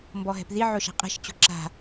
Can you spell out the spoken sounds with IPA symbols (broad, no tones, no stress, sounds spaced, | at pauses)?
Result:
m b ɔ ɦ ɛ̤ p ð i ʕ o ʃ a̤ qʼ ɛ̤ ʃ t͡ɕ o̤ ǁ a̤